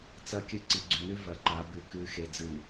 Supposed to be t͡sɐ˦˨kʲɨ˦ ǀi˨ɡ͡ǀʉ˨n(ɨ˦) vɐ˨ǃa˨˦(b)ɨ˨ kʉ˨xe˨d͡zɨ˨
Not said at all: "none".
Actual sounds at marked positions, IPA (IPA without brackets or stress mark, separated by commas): ʉ˦, b